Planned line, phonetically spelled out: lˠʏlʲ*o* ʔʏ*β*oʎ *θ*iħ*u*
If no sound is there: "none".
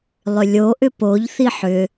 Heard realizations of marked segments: o, p, θ, ʏ

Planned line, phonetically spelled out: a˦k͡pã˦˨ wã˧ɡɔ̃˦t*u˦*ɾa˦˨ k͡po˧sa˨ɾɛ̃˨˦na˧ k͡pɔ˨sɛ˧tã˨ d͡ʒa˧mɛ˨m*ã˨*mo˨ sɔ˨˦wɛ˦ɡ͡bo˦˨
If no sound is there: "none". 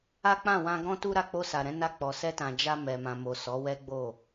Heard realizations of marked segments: u˦, ã˨

